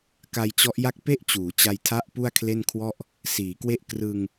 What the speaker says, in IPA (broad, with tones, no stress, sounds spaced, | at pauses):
k a˧ j t͡ɕ ɔ˦˥ ʔ j a˥˩ k̚ p e˥˩ ʔ t͡ɕ uː˩˦ t͡ɕ a˧ j tʰ a˦˥ ʔ p u˥˩ a̯ kʰ l e˥˩ n kʰ w ɔ˥˩ ʔ | s iː˩˦ k w e˥˩ ʔ k r ɯ˧ ŋ